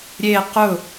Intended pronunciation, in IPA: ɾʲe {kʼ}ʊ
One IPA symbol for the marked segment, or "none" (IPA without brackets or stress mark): q